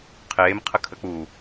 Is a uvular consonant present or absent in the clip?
present